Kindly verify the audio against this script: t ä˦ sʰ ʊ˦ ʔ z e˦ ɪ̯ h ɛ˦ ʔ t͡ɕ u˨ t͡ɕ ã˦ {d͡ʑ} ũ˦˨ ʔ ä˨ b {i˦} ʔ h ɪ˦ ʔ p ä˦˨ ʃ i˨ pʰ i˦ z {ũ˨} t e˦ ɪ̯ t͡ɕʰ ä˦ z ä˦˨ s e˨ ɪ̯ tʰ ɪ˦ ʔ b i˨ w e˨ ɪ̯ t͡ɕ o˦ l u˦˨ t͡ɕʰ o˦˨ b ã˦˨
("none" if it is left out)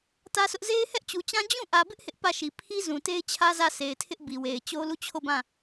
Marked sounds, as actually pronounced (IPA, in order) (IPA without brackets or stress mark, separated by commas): d͡ʑ, ɪ˦, ũ˨